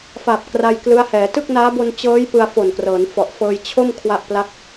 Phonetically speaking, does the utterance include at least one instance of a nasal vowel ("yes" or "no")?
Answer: no